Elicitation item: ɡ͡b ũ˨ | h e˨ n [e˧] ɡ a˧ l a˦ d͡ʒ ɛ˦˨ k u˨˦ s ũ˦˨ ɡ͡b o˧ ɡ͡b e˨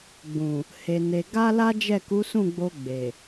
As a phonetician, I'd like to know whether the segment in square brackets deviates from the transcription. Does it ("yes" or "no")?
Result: yes